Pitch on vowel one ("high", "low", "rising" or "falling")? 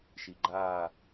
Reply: low